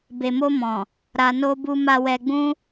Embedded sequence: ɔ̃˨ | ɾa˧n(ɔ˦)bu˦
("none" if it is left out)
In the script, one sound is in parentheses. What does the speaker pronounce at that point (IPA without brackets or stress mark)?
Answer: o˦